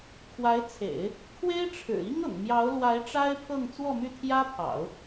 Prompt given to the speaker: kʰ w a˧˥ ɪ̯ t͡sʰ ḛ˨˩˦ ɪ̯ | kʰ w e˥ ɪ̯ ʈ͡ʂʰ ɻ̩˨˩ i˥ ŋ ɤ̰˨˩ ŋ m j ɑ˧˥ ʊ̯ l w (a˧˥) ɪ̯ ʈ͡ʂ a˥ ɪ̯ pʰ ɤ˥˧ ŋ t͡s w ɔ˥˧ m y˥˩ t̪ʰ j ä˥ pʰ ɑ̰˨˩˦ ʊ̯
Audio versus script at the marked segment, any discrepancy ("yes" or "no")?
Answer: no